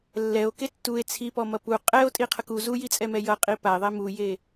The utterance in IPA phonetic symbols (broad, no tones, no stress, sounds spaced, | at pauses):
lː ɛ o̯ k e tː u e̯ t͡sʰ i p ɔ m ʌ p u qʼ ɛ o̯ tʼ i qʰ ʌ k u z u j i t͡sʼ ɛ m ɛ j ʌ qʼ i p a e̯ ðˤ e m u j e